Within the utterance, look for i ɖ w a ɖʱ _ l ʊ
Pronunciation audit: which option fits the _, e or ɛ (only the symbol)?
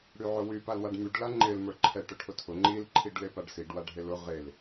e